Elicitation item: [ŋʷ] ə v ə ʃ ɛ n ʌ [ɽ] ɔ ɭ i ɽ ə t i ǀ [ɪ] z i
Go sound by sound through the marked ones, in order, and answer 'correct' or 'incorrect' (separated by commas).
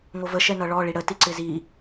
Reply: correct, incorrect, correct